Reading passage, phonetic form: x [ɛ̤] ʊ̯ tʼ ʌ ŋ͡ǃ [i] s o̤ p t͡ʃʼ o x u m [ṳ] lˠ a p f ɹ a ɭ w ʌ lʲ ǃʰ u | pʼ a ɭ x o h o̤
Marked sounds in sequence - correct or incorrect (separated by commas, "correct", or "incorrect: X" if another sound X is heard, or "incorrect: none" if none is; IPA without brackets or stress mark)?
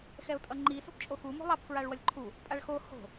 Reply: incorrect: ɛ, correct, incorrect: o̤